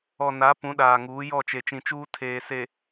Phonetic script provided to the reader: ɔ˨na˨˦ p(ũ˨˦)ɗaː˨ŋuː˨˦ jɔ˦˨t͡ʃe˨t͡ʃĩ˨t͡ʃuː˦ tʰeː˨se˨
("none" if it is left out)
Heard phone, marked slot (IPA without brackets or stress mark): ũ˨˦